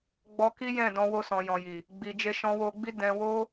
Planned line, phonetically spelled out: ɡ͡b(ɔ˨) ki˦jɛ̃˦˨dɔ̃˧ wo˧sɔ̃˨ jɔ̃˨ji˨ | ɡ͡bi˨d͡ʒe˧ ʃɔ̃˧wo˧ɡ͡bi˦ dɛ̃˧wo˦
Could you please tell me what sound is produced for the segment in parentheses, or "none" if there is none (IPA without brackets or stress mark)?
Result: ɔ˧